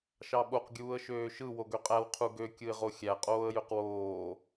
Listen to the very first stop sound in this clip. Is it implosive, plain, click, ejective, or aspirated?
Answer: implosive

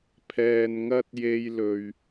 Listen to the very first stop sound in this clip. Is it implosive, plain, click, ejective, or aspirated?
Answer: aspirated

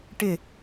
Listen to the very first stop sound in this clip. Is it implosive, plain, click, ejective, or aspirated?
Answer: plain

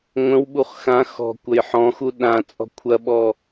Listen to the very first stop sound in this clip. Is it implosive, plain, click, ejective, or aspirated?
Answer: implosive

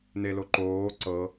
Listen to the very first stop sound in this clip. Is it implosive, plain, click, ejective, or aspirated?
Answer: click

